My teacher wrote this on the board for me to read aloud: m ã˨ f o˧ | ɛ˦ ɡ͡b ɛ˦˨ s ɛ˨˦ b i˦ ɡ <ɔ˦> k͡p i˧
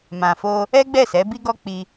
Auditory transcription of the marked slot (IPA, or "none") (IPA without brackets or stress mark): ɔ˦